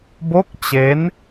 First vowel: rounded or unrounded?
rounded